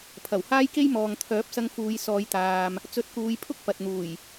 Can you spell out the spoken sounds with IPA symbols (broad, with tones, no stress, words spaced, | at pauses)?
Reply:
pʰɐ˨˩whaː˥jke˥j mɔː˨ŋt̪ʰœː˨˥p̚sɐ˧ŋ fuː˨˧jsɔː˨˧jt̪aː˨m | t͡sɵ˨˥t̚kuː˨˧jpʰʊ˥k̚ pɐ˨t̚n̪uː˨˩j